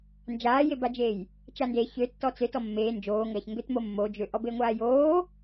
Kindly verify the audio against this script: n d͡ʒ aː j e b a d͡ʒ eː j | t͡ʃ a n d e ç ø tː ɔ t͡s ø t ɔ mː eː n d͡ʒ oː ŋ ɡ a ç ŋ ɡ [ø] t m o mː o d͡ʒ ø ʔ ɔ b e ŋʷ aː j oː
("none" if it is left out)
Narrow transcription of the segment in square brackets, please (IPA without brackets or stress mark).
ø